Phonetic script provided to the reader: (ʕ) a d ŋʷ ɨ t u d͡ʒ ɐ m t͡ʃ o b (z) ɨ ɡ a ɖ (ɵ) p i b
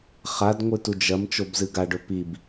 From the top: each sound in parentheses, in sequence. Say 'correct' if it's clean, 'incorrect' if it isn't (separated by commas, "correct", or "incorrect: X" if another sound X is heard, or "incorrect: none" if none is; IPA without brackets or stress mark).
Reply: incorrect: χ, correct, correct